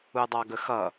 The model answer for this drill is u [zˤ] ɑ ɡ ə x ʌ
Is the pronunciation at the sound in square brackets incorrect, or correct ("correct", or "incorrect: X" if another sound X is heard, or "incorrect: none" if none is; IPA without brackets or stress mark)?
incorrect: dˤ